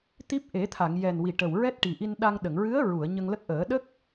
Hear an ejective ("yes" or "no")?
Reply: no